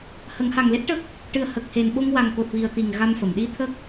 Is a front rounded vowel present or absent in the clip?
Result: absent